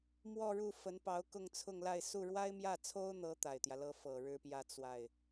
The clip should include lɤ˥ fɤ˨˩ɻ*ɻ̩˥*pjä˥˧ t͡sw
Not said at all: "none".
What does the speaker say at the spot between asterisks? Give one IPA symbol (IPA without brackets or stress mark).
ɻ̩˥